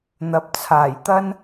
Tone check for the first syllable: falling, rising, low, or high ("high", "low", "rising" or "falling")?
rising